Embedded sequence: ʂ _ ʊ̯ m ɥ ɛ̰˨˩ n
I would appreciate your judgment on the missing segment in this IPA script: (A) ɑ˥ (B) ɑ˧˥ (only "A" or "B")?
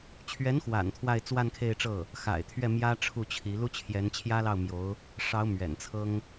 B